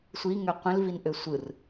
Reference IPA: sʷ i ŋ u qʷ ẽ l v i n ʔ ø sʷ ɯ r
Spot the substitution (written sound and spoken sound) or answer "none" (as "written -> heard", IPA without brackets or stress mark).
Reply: u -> ø